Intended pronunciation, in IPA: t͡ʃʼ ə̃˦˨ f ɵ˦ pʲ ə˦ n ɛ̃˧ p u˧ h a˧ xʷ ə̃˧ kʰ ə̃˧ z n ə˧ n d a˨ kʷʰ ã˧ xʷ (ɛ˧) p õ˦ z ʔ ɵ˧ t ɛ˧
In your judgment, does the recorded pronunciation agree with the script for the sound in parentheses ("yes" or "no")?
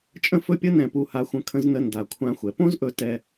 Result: no